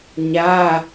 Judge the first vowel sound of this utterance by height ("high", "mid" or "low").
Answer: low